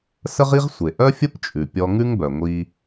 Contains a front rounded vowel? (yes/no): yes